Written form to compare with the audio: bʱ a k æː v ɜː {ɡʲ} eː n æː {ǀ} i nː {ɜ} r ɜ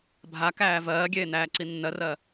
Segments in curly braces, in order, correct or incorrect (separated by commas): correct, correct, correct